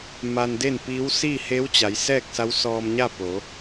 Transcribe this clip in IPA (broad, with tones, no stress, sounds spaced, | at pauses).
m a˧ n d e˥˨ n p iː˧˥ w s iː˥˨ h e˧˥ w t͡ɕ a˩˧ j s ɛː˥˨ k̚ s a˧˥ w s ɔː˧ m ɲ a˥˨ p o˩˧